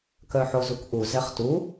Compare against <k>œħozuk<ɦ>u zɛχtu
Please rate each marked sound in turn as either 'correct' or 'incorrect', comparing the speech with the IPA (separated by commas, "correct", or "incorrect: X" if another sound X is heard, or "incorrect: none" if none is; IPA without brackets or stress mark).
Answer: correct, incorrect: ʔ